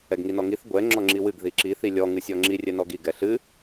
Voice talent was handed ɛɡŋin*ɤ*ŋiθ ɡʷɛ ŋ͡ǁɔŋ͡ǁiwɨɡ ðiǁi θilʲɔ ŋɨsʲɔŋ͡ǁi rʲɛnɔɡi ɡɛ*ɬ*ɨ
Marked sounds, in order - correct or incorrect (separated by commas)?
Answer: incorrect, correct